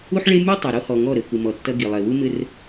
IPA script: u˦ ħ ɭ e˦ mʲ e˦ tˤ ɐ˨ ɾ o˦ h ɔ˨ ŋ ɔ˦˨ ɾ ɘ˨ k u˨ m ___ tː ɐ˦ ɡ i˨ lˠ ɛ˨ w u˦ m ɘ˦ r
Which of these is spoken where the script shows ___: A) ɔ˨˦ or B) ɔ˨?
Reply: B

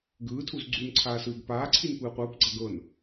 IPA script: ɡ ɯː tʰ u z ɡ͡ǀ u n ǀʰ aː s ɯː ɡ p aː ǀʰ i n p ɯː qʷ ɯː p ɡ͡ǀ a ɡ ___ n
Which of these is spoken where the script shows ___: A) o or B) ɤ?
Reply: B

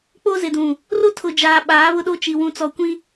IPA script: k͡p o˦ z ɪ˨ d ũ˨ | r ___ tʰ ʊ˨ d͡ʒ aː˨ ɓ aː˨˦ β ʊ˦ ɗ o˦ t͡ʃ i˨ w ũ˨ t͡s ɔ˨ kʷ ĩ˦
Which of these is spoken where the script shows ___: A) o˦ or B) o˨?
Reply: A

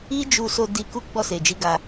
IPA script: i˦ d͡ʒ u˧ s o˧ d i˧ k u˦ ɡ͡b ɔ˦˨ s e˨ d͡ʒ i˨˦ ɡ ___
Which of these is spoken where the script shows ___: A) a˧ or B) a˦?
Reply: A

